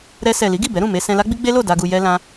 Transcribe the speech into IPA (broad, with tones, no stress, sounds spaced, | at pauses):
ɾ ɛ˧ s ɛ˨ l i˨˦ ɡ i˦˨ b ɛ˨˦ ɾ ũ˦˨ m e˧ s ɛ̃˧ l a˦ ɡ͡b i˦ ɡ͡b e˦ l o˦˨ d a˧ ɡ u˧ j ɛ˧ l ã˦